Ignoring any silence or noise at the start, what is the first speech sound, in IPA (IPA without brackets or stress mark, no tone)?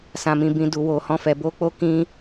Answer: s